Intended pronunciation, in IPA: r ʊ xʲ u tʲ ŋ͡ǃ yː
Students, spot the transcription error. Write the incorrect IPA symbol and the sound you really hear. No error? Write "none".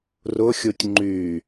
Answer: none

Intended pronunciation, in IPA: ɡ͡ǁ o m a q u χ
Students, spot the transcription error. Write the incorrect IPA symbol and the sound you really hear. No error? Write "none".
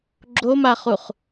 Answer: q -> χ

